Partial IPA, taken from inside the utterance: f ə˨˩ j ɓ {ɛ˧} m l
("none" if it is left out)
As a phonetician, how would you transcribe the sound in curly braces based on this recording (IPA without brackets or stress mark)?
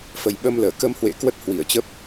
ə˧